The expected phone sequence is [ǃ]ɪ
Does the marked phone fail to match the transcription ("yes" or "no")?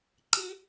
no